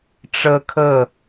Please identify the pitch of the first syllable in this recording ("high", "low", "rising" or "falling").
high